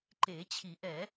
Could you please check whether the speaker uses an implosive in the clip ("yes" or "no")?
no